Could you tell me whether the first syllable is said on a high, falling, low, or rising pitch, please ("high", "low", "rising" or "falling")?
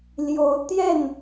rising